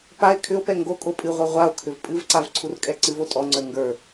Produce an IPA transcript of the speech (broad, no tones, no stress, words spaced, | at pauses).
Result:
pae̯ kʰʏo̯pɛ ŋɡo kʼopʼɨʁʷɜ ʁʷao̯kʰʏv pʼɨvǀav ǀʰurkʼɛǀɨvo tʼɔŋ͡ǀə˞ ŋɡə˞